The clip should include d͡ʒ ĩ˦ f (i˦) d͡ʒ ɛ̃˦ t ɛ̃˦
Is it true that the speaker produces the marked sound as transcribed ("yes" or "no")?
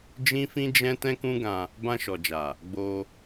no